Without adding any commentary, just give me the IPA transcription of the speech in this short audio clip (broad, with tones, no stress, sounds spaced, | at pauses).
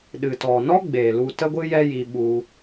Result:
ɗ ɨ˨ t ɔ˨ n ɔ˦ ɡ͡b eː˨ l u˧ t ə˦ ɡʷ ɨ˦ j ɛ˦ j i˧ ɓ u˧